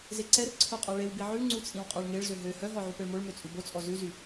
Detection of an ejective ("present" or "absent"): present